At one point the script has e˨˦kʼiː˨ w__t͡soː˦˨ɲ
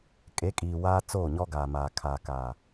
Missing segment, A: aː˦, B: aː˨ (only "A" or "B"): A